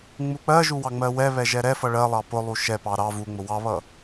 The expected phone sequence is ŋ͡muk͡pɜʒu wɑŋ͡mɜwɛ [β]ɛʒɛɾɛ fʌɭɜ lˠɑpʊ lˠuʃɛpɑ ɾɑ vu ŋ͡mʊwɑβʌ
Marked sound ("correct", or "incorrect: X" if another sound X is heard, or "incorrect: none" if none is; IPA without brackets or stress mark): correct